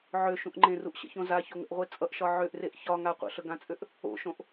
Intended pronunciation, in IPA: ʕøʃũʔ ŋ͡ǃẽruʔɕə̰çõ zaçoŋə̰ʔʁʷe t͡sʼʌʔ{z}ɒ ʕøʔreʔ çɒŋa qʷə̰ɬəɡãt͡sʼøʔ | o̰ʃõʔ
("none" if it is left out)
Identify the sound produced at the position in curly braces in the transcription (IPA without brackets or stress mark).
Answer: ʃ